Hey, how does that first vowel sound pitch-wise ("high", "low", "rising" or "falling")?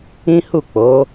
high